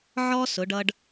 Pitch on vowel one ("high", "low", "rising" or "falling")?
high